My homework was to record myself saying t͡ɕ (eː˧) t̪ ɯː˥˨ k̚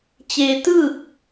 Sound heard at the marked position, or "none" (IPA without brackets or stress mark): eː˧